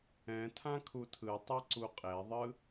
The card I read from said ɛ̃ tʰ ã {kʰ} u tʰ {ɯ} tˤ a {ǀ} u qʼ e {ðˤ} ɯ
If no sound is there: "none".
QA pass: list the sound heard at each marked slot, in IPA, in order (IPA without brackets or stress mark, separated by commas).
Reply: kʰ, ɯ, ǀ, ðˤ